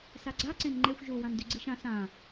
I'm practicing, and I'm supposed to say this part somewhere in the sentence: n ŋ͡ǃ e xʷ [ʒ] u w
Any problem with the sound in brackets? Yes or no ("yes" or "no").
no